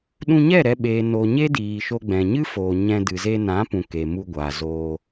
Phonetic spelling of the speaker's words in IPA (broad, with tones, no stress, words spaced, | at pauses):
ɗũ˧ɲɛ˦˨ ɾɛ˧ɓeː˨ no˨ ɲe˦diː˨ʃo˧ ɡ͡bɛ̃˨ɲɨ˦foː˨ ɲɛ̃˧ dɨ˨ze˧nã˨˦pũ˨ ke˨mu˧ɡʷaː˨zoː˧